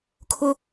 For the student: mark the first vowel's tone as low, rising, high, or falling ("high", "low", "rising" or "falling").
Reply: high